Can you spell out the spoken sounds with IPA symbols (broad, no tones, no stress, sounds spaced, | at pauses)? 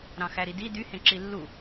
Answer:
ɾ ɑ̃ x æ ɾ i d i d y h ẽ ǁ i lː u